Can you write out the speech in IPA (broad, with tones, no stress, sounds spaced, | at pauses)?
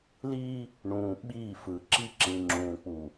l iː˦ | ɳ ũː˨ ɓ iː˦˨ f ɯ˨ ǁ i˦ ǁ ĩ˨ ŋ͡ǁ ũː˨ k͡p u˨